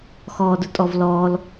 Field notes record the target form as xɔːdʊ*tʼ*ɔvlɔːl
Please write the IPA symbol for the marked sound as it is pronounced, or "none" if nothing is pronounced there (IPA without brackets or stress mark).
tʼ